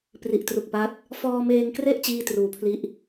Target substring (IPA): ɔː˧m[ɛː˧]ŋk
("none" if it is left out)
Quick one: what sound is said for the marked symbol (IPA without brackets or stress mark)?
eː˧